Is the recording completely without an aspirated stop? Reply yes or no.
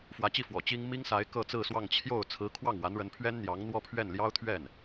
no